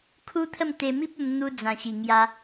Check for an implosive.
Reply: absent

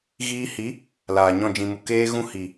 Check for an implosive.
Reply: absent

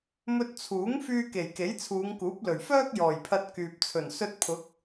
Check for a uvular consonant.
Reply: absent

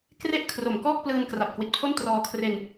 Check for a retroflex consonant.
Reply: absent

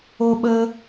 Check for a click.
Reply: absent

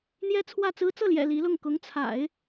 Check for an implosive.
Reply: absent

